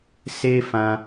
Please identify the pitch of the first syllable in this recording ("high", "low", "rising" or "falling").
high